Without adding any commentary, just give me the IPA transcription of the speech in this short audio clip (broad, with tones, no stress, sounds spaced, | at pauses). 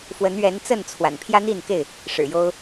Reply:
f w ə˨˦ n ɥ ɛ˨˦ n t͡s ə˥˨ n t͡sʰ w a̰˨˩ n pʰ j ä˦ n̪ i˥˨ n k e˥˨ ɪ̯ | ʂ ɻ̩˨˩ j o˦ ʊ̯